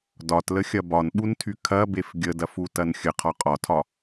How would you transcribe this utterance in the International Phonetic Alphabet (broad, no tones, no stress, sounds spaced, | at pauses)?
d ɒ t l ə xʲ ɐ b ɒ n ɓ u n tʰ y kʰ ɐ b e f ɡʲ ə d ɐ f u t ɐ n xʲ ə qʰ ɒ qʼ ɒ tʰ ɒ